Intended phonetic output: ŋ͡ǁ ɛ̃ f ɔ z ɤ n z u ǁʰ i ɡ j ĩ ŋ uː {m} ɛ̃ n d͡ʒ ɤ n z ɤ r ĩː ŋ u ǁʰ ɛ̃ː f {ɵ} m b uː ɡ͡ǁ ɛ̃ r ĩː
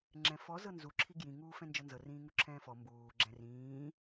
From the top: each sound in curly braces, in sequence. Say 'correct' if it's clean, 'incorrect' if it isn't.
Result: incorrect, incorrect

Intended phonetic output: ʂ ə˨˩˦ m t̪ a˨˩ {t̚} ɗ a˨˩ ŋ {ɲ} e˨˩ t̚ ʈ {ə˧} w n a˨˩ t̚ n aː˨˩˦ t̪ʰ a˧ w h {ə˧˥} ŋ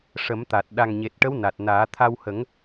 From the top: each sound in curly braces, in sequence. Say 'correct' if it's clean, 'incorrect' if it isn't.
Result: correct, correct, incorrect, incorrect

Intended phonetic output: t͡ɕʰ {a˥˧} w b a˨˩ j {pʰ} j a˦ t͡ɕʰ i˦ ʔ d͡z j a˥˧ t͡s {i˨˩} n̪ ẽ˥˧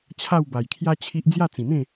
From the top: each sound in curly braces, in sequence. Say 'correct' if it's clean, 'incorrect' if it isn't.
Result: correct, incorrect, incorrect

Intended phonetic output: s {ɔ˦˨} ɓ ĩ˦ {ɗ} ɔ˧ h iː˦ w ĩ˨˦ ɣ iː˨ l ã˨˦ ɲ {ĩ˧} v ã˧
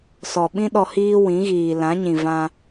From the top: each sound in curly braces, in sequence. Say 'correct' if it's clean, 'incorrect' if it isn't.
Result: incorrect, correct, incorrect

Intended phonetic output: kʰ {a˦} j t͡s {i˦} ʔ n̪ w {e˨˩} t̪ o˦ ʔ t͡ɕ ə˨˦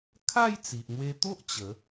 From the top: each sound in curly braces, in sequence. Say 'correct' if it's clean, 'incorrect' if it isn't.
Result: incorrect, incorrect, incorrect

